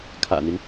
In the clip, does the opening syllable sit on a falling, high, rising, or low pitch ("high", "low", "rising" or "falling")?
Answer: low